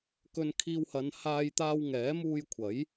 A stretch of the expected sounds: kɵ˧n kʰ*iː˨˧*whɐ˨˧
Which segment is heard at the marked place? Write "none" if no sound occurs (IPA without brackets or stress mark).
iː˧